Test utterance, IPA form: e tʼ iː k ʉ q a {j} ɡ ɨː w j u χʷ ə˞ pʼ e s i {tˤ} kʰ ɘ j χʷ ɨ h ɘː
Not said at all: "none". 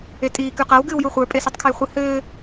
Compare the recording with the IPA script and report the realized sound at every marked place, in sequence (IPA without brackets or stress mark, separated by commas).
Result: w, tˤ